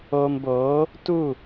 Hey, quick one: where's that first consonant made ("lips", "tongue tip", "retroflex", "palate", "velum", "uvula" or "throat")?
lips